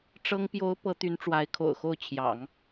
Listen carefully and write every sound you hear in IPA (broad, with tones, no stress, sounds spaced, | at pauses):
ʈ͡ʂ ɤ˥ ŋ p j o˧˥ ʊ̯ p ɤ˧˥ t̪ y˧˥ n ʈ͡ʂ w a˧˥ ɪ̯ kʰ o̰˨˩ ʊ̯ x o˥˩ ʊ̯ t͡ɕʰ j ɑ̰˨˩˦ ŋ